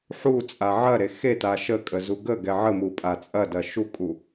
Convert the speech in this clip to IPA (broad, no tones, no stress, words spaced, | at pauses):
ħu t͡sʼaʕɐɾe xeta ʃəkʼə zuɡəɡɛ ʕəmu pʼat͡sʼɐdɐ ʃukʼu